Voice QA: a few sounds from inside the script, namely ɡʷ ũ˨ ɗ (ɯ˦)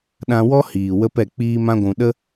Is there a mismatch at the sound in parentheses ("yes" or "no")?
yes